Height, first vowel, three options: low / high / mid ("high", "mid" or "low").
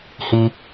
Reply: high